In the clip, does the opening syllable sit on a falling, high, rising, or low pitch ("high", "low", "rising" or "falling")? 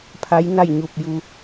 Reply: rising